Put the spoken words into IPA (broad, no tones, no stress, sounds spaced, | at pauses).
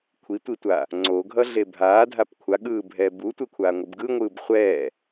kʷʰ i tʷ i tʷ aː | ŋ͡ǀ o ɡʱ ʌ ɮ e bʱ aː dʱ a p kʷʰ a ɠ ɯː bʱ ɛː b u tʷ ɛ kʷʰ aː ŋʷ ɯ b ɡ ɯ ŋʷ ɯː b χʷ ɛː